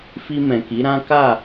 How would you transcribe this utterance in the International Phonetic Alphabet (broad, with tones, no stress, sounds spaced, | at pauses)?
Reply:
f i˧ m ɛ̃˨ k i˨˦ ɾ ã˦ k a˦˨